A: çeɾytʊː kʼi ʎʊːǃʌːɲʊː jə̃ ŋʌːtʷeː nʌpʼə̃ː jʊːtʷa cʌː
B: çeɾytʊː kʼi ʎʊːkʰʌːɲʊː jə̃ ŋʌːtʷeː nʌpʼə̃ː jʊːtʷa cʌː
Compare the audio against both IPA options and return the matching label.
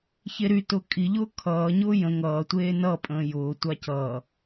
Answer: B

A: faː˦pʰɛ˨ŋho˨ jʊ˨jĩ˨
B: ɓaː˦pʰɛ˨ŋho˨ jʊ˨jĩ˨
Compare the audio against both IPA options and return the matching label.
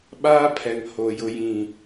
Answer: B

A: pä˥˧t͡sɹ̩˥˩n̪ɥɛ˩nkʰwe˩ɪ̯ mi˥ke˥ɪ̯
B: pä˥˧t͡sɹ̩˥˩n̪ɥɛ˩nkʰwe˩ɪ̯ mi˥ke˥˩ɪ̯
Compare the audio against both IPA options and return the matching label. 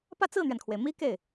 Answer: B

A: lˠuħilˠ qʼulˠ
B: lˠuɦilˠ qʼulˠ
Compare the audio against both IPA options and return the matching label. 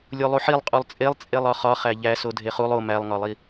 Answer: A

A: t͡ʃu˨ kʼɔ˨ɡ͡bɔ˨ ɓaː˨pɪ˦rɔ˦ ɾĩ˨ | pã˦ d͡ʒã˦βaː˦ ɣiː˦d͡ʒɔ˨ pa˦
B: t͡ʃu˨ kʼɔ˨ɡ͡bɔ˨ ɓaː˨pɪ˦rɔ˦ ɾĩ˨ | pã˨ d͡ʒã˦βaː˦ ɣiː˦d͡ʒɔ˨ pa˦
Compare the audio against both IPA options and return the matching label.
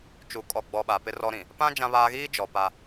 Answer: A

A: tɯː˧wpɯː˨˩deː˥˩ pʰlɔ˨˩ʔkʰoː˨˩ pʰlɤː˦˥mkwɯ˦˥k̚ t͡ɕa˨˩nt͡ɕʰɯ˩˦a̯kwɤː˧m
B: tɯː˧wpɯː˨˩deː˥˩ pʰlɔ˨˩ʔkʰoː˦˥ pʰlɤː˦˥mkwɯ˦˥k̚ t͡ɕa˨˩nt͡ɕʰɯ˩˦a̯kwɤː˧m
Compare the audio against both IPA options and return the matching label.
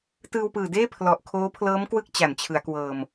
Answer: B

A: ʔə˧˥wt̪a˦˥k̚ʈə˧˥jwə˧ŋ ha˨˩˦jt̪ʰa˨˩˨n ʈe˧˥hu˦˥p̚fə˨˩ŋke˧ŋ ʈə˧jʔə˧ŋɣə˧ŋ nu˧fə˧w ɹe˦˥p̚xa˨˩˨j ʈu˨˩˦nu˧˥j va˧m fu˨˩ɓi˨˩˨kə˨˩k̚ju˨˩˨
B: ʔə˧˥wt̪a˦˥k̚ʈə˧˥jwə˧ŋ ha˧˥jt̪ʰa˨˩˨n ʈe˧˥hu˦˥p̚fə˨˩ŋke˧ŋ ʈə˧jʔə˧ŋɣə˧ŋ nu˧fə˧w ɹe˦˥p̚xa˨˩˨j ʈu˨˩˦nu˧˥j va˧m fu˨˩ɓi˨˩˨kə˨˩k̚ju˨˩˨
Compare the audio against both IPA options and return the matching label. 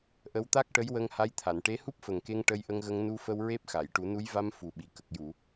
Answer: B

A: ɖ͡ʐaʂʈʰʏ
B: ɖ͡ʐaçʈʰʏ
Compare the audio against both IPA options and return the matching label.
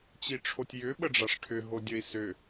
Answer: A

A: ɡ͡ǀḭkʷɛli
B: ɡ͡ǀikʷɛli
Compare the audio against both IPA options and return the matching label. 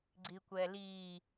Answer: B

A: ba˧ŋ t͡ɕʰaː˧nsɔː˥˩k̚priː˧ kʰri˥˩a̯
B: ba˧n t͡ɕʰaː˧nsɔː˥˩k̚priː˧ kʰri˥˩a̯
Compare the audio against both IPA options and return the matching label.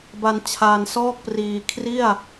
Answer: B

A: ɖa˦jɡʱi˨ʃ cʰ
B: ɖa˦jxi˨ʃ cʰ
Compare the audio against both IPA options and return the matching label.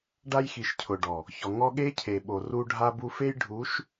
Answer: B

